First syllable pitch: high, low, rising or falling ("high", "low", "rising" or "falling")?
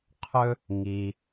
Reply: high